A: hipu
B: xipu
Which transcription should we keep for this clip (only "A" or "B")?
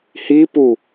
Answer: A